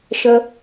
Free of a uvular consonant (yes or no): yes